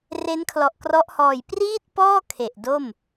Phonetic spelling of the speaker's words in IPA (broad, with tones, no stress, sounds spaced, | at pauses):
r e˦˥ n kʰ l ɔ˨˩ ʔ k r ɔ˦˥ ʔ h ɔː˨˩ j p r iː˥˩ t̚ p ɔː˥˩ kʰ e˨˩ ʔ d o˥˩ m